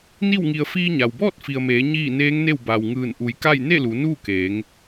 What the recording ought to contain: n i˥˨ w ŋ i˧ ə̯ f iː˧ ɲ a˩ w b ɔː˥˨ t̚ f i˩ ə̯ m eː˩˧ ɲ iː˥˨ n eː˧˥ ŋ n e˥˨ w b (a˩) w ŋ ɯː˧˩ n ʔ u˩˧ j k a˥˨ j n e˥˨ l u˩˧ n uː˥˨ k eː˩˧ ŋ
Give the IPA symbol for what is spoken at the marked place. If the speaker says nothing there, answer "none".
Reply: a˩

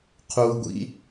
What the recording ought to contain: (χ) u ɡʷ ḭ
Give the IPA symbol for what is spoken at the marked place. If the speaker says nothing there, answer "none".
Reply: qʰ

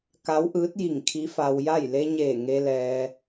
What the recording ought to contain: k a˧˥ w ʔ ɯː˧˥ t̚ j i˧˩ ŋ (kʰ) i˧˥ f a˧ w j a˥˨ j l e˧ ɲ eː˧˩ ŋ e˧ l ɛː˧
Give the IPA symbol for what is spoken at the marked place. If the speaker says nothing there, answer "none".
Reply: kʰ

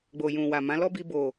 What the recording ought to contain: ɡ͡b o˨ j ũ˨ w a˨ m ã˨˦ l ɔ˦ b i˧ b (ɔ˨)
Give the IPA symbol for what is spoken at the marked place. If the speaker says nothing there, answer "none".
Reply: o˨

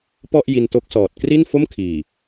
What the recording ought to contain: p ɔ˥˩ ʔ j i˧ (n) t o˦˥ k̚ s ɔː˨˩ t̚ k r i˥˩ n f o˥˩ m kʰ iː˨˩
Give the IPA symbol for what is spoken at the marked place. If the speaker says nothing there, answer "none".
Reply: n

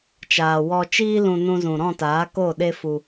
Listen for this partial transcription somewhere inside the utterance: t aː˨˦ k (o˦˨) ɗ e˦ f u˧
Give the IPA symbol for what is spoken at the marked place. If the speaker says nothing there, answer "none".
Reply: o˦˨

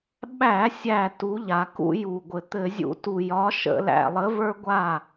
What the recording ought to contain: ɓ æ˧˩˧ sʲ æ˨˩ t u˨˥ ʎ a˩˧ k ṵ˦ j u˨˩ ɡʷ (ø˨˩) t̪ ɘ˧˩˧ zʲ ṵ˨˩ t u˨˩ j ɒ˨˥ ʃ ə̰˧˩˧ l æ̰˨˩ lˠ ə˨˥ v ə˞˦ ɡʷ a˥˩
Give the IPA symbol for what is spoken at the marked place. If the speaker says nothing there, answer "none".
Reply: ɘ˨˩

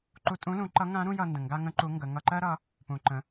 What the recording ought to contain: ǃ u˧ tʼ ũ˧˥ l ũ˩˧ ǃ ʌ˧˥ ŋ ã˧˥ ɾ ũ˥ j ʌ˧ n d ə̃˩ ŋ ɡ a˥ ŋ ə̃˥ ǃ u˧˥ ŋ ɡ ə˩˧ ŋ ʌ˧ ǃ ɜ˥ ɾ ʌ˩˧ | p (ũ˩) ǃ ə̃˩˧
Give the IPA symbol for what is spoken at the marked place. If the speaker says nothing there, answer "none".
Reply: ũ˩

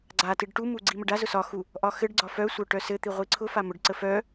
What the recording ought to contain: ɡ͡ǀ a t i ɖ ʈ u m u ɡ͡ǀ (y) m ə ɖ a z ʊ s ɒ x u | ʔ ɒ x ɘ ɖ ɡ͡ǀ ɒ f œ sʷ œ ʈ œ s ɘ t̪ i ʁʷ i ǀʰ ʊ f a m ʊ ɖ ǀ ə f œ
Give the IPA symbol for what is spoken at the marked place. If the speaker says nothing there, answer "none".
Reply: i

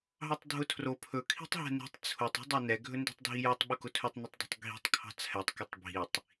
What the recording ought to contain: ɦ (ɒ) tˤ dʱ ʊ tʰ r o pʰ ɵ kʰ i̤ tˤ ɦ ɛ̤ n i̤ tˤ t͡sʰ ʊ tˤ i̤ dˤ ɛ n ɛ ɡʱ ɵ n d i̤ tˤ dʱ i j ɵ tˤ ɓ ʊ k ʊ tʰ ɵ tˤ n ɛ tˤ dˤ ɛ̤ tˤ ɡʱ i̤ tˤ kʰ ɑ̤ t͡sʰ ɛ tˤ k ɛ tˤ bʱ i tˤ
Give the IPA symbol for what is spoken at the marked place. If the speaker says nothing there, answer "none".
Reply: ɑ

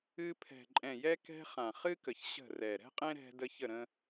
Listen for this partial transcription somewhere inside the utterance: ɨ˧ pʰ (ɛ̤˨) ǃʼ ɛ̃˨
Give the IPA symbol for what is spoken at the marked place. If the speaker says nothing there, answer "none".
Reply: ɛ̤˨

